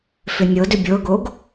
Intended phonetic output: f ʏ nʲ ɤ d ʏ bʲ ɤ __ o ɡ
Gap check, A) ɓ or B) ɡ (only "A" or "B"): B